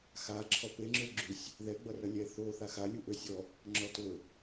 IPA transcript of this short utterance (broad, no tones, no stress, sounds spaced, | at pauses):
x a ǁʰ ɔ p e ŋ͡ǁ ø ɡ͡ǁ ʉ sʲ | ð ɛ ɡ͡b ʌ r ʌ lʲ ɛ θ o θ a x a lʲ u ʔ ø sʲ ɔ | ŋ͡ǁ ɔ t ɵ